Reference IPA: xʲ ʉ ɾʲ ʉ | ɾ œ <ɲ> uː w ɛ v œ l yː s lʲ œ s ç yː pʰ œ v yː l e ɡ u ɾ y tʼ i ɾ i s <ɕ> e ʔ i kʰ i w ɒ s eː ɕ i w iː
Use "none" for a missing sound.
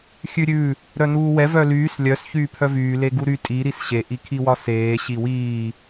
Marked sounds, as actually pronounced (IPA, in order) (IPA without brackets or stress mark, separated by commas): n, ɕ